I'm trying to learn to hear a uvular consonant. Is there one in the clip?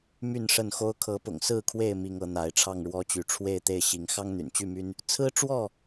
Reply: no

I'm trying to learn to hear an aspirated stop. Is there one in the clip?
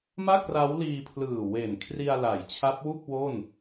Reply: yes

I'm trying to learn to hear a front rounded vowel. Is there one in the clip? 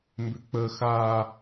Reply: yes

